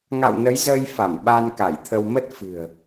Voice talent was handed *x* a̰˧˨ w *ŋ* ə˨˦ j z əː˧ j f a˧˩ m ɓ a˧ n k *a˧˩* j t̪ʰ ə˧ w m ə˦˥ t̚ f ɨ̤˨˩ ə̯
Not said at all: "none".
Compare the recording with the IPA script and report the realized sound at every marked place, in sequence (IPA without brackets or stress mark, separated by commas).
ŋ, n, a˧˩